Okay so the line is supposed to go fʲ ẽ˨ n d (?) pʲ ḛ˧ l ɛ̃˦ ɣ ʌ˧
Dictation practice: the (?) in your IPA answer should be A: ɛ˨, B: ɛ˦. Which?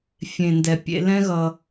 A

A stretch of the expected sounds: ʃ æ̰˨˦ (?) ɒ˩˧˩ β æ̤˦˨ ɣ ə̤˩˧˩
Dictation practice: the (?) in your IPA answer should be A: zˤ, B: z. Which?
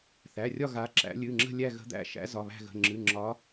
B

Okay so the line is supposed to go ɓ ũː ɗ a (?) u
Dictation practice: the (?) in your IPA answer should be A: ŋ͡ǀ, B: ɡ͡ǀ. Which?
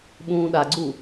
B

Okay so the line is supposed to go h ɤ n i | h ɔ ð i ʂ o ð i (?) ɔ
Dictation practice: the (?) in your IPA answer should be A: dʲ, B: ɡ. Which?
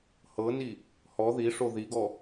B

